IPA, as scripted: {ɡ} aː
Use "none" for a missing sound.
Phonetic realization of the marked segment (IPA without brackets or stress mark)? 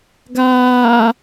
ɡ